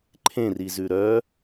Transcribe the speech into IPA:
ǃʰ ẽ r i z ʉ ɾ œ

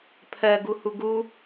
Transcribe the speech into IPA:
pʰ ɜ ɡ u h u ɡ u

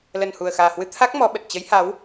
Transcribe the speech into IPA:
l ə˨˩ n h u˨˩ ə̯ x aː˨˩ h w ɨ˧ t̪ʰ a˦˥ k̚ m ɔ˨˦ ɓ ə˨˩ t̚ t͡ɕ ə˨˦ j h a˨˦ w

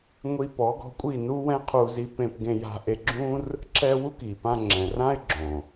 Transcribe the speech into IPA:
ŋʷ i˧ p ɔ˨˦ ɡ ɔ̤˧ kʷʼ i˦˨ n u˦ w ɛ̃˦ qʰ u˧ z i˧ p ẽ˧ p ɡ ẽ˧ j a̤˧ ʔ e˧ ɡ͡ǁ ũ˦ r | ǁ ɛ˧ w u˦ k i˨ p ã˧ ŋ͡ǁ ɛ̃˨ r ã˦ ɪ̯ ɡ͡ǁ õ˨

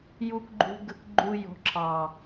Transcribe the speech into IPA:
j u˨ k ɡ͡ǃ ṳ˨ ɡ ə˨ k ɡ͡ǃ u˨ j ɔ̤˨ ǁʰ ɑ˨

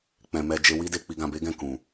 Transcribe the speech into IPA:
k͡p ɛ̃˧ m ɛ˦ d͡ʒ e˦ w i˦ d e˧ k͡p i˧ ɡ ã˧ b e˦ ɡ ɛ̃˦˨ k ũ˨

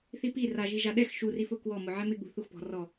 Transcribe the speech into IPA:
θ i p i r a ʒ i ʒ a ɗ ɛ x ʃ u r i f ʊ k w ɔ m ʊ ʕ ɛ m ɪ ɠ ṳ θ u x p ɔ̤ r ɔ

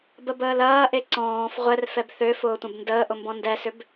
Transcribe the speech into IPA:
b ə b əː l ɐː ʔ e ǀ ɔ̃ː f ʁʷ ɛ r f ɛ b θ ø f ʊː tʷ ɐ̃ b n d əː ʔ ʊ m b ɔ̃ n d ɛ s ʏ b

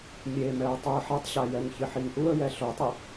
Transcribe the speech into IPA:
mʲ e m ɛ ə̯ tˤ u ə̯ ħ ɛ tˤ ɕ a j ɛ ŋ ç ɪ ħ i ŋ ʔ u ə̯ j ɛ ɬ o tˤ i

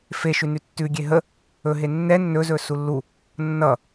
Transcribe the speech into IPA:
f e ʃ ʉ n ʉ tː ʉ ɡʲ e ɦ ə | ɵ ɦ e nː ɛ nː ɵ z ɵ s u lː u | nː ʌ

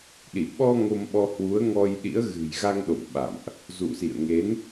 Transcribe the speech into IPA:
ɗ i˧˩ ɓ ɔ˧ ŋ o˧ m ɓ ɔ˧ h w u˨˦ ə̯ ŋ ɔ˧ j ɗ ḭ˧˥ ə̯ ɣ ɨ̤˨˩ j ɣ a˧ ŋ ɗ o̰˧˨ m ɓ a̰˧˨ m ʔ | z ṵ˧˨ s ḭ˧˨ ə̯ ŋ e˨˦ n

